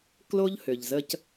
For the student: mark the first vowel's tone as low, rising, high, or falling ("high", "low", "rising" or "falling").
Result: high